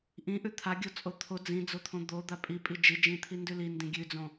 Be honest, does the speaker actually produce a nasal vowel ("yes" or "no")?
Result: yes